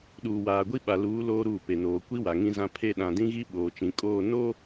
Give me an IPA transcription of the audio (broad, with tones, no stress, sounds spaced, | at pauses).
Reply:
ɗ uː˨ w aː˨ ɡʷ i˦ ɓ a˨ l uː˨˦ l oː˦ ɾ uː˦˨ p e˨ n oː˨ kʷ i˦ w a˨ ŋ ĩ˦ z ã˦ pʰ e˦˨ ɗ ã˨ d ĩ˦ ɣ i˦ ɓ oː˨ t͡ʃ ĩ˨ kʼ oː˦˨ n o˦